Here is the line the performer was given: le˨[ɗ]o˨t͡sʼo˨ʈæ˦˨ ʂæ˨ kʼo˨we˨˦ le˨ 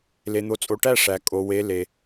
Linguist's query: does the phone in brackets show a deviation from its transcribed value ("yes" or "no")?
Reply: yes